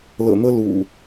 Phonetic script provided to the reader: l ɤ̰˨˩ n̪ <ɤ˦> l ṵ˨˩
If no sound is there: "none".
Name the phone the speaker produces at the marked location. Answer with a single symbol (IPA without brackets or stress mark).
ɤ˦